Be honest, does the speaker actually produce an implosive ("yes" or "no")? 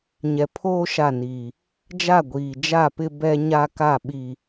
yes